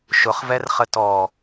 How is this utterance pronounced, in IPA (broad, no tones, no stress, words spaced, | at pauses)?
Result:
ʃʊχvɛrχə tɔ